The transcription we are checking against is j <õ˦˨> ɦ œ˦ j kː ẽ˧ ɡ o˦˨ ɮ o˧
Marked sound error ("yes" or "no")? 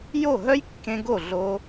yes